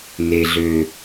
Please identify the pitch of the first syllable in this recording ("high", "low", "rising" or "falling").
low